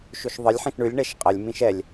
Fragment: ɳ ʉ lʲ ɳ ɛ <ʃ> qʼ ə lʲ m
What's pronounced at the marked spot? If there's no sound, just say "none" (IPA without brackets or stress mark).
ʃ